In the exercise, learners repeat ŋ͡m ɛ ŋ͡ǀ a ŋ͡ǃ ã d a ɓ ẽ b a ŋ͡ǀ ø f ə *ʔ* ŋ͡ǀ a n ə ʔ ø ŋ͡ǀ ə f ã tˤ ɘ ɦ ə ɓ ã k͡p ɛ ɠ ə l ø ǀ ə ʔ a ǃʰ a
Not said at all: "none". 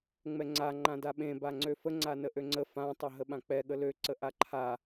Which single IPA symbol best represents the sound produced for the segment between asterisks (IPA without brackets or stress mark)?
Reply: none